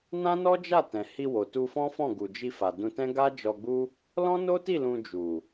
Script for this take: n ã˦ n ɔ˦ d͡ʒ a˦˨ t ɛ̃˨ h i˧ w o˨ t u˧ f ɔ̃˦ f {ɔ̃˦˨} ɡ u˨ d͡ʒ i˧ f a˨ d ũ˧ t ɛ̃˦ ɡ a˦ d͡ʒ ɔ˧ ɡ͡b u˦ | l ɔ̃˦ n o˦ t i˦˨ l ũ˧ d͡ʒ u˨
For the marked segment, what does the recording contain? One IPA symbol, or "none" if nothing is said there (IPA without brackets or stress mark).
ɔ̃˦˨